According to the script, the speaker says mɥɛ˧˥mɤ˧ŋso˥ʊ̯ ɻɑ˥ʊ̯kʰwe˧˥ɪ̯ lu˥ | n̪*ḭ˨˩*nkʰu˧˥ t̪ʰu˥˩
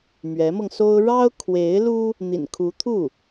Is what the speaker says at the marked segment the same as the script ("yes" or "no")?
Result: yes